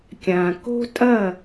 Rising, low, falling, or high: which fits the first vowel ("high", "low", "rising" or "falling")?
low